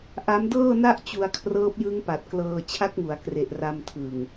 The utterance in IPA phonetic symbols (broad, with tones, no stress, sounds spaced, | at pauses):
ʔ a˦˥ m d ɤː˥˩ n a˥˩ ʔ t͡ɕ u˧ a̯ kʰ r ɤː˦˥ p̚ j ɯ˦˥ ŋ p a˨˩ t̚ k l ɤː˧ t͡ɕʰ a˦˥ k̚ ŋ u˩˦ a̯ k r e˨˩ ʔ r a˧ m tʰ ɯ˨˩ ŋ